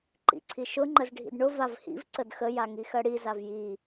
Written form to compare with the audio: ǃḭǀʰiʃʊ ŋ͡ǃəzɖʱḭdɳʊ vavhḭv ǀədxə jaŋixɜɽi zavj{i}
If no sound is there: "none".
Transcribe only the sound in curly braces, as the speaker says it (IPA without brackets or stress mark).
i